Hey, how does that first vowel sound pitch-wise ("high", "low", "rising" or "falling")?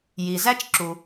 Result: low